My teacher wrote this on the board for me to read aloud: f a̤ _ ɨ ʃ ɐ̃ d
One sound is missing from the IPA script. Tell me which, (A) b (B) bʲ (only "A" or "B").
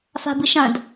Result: A